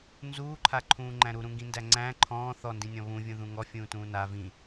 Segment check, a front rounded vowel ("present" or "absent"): absent